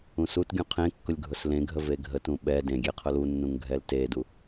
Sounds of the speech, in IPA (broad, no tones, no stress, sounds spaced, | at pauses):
ũ s u t ɡʲ ũ qʰ ẽ kː ʊ lʲ ɡʱ ʊ s l ẽ ɡʱ ə v e ɡʱ ə t ũ ɓ ɛ d ẽ ɡʲ e qʰ ʊ l u nː ũ ŋ ɡʱ ɛ l t e d u